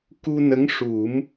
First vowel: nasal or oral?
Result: oral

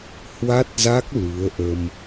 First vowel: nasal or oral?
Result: oral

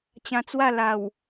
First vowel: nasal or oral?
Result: nasal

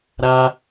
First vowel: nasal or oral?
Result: oral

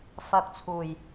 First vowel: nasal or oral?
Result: oral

